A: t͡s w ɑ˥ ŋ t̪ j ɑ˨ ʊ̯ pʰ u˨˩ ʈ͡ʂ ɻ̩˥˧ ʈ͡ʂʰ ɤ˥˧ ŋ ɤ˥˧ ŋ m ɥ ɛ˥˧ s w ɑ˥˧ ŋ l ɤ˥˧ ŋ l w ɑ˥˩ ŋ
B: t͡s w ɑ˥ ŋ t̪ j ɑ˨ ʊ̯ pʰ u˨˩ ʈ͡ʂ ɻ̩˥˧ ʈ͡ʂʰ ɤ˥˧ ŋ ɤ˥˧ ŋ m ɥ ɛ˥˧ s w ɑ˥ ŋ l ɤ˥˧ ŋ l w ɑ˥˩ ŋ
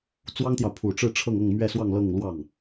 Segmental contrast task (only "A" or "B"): A